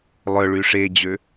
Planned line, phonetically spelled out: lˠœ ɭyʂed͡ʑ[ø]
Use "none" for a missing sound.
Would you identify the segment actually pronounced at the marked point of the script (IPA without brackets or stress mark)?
ø